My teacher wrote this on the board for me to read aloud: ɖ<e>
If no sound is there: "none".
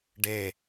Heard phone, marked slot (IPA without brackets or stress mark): e